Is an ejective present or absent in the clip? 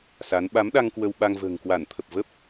absent